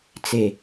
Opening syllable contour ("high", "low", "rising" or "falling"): low